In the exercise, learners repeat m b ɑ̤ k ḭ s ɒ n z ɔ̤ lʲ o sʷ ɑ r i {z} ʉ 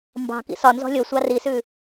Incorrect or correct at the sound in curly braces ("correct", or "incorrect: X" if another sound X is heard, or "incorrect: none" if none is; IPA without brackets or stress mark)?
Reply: incorrect: s